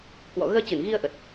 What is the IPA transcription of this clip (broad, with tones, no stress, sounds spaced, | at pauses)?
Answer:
k w ɔ̰˧˨ ɣ əː˧ t͡ɕ ɨ˧˩ n ɣ i˧ ə̯ ʔ ə˨˩ t̚